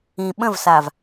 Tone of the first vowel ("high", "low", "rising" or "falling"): low